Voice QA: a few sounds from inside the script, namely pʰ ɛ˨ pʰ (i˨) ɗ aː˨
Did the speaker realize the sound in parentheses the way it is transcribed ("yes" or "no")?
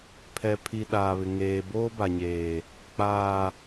yes